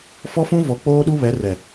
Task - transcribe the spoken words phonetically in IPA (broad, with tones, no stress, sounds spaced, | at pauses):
f ɔ˦ f ũ˦ v ɔ˨ k͡p oː˦ ɗ u˦ β ɛ˨˦ r ɛ˨